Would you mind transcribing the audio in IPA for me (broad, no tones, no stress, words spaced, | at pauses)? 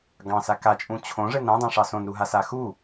ɡɑ̃sa kat͡ʃʼũ t͡ɕʰõʐɘn ɾãdˤãʂɑ sõnɾuɦasa xu